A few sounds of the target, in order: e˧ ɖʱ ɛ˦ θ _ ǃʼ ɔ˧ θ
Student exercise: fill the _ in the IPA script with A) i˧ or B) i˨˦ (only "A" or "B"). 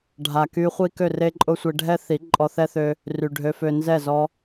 B